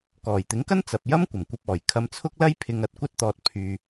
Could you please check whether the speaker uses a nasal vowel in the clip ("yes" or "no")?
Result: no